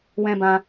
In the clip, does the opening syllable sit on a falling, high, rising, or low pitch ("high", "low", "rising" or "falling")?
high